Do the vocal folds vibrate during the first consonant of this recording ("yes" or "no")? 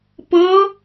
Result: no